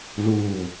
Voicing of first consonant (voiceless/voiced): voiced